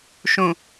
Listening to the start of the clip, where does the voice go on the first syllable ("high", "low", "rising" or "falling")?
low